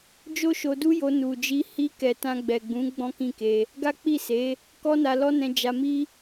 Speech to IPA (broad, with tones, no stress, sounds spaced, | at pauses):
d͡ʒ o˦ ʃ o˧ d u˦ j o˧ n u˨ d͡ʒ i˧ h i˧ k ɛ˨ t ã˧ ɡ͡b ɛ˨ ɡ͡b ũ˨˦ ɡ͡b ɔ̃˦ k ĩ˦˨ k e˧ | ɡ a˦ k͡p i˦˨ s e˨˦ | k ɔ˦ n a˧ l ɔ˦ n ɛ̃˧ d͡ʒ a˧ m i˦